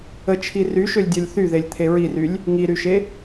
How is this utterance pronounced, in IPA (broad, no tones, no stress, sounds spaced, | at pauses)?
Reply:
ə t͡ʃʰ i r y ʃ ø lʲ dʲ œ lʲ θ y ð e lʲ t̪ʰ e ɹ i r y lʲ | ŋ i ɾ y ʃ e